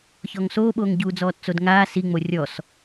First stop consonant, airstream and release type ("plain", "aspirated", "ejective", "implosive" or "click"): implosive